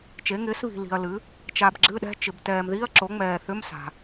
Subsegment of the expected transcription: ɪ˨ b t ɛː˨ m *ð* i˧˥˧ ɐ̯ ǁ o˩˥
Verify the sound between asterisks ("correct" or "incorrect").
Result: correct